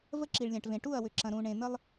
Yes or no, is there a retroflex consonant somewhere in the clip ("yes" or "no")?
yes